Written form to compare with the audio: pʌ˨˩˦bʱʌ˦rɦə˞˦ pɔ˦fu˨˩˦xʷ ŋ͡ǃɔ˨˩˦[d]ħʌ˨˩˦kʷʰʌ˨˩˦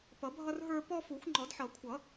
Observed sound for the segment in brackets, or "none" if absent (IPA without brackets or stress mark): d